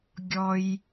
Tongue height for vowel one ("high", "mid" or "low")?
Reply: mid